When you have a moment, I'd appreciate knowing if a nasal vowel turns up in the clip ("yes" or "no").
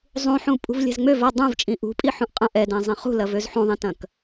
yes